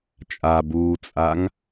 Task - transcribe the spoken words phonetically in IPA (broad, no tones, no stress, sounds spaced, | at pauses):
t͡ʃʼ a b uː t͡sʼ a ŋ